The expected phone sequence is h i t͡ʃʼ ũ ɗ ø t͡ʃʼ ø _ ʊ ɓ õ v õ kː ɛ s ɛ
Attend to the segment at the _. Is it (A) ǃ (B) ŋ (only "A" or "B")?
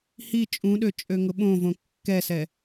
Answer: B